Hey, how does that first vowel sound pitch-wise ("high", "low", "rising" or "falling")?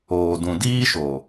low